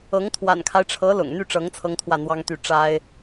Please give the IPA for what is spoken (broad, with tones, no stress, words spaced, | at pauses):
ɤ˧˥ŋ t̪ʰwa̰˨˩nkʰa˦ɪ̯ʈ͡ʂʰɤ˧˥ lʊ̰˨˩ŋn̪y˥˩ʈ͡ʂɤ˧˥ŋ t͡sʰɤ˥ŋt̪ʰwä˥˩n̪wɑ˥ŋt̪y˥˩ ʈ͡ʂa˥ɪ̯